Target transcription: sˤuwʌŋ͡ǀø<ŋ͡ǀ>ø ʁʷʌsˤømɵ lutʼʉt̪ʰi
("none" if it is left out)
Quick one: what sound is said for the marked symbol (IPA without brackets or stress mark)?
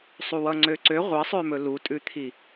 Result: ǀ